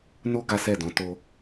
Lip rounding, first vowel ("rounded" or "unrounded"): rounded